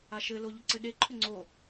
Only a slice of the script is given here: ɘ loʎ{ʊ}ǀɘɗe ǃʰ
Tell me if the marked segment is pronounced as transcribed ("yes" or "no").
yes